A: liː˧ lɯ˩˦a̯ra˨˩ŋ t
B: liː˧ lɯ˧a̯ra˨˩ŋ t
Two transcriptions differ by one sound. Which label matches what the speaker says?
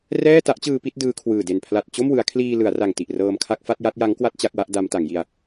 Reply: A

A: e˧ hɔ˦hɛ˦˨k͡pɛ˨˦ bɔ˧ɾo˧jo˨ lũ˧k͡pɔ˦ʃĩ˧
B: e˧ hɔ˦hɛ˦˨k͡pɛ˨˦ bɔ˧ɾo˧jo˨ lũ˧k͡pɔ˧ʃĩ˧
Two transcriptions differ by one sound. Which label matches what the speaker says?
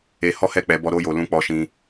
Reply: B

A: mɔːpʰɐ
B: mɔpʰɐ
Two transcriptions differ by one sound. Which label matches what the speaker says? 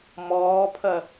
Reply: A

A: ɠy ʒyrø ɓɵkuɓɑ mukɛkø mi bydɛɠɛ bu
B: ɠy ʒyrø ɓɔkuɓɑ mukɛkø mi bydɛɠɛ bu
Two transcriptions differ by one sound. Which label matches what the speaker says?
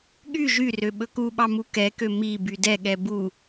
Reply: A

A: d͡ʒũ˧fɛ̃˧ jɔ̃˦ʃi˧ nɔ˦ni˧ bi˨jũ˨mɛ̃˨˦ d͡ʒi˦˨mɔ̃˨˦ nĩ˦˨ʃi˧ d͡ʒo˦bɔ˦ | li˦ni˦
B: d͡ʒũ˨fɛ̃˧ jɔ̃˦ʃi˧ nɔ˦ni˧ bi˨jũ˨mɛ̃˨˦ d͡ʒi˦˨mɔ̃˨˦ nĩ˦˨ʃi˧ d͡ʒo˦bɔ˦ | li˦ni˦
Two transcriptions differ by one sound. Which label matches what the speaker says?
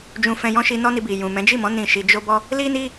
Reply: A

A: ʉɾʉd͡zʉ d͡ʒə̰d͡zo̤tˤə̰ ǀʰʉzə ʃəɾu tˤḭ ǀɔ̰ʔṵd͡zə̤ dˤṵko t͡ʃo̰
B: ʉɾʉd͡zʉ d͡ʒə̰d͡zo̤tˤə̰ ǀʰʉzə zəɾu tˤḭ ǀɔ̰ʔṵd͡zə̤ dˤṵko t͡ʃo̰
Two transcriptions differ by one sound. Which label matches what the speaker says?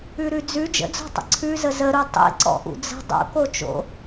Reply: B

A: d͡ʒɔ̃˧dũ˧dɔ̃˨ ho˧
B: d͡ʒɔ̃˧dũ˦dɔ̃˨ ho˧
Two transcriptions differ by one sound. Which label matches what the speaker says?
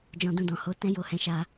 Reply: A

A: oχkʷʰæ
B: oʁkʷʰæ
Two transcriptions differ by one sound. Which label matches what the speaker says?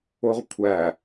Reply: B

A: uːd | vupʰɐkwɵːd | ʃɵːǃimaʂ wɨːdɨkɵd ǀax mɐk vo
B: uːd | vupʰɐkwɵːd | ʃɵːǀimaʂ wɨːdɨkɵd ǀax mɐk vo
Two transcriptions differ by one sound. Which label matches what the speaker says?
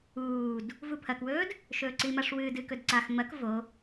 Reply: B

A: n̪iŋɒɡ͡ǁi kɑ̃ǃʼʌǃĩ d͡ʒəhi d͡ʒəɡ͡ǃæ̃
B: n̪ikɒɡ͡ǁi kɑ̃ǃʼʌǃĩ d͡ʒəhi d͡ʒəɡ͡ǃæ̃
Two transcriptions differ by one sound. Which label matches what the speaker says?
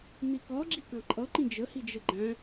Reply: B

